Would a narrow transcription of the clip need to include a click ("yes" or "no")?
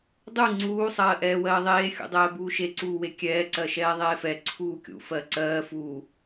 yes